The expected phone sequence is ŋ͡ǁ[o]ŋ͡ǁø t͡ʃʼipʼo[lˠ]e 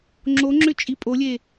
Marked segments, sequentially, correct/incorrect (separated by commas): correct, incorrect